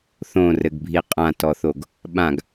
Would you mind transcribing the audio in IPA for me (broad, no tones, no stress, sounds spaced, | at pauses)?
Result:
θ õ r ɘ ɡ bʱ i qʼ ã t ɔ θ o ɡ | ɓ ã ɡ